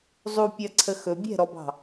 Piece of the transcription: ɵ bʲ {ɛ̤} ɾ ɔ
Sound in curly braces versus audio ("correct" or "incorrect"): correct